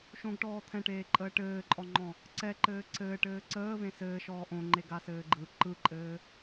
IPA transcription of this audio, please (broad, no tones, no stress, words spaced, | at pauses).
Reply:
ʃõɡʈɔː t̪ʰɛ̃ʈeːǃʼəː ʈɘːǃʼɔŋ͡ǃɔ̃ | ǀɛǃɘː ǀɘːʈɘː ǀəːvẽ sɘːʃɔː ʔõŋ͡ǃeɡasɘː ɡ͡ǃɯ ǃɯǃʼɘː